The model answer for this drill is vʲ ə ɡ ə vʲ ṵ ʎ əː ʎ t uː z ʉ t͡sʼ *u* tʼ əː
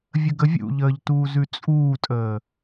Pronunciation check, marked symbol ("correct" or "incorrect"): incorrect